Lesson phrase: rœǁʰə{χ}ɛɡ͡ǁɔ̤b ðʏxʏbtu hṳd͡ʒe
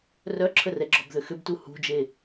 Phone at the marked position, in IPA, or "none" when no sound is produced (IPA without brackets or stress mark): r